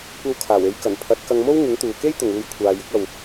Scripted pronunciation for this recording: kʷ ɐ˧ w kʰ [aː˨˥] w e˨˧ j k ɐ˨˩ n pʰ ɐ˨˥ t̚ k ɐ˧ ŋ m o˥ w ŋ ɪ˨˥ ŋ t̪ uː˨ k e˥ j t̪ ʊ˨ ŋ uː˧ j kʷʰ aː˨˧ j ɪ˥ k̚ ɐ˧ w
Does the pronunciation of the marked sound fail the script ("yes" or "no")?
yes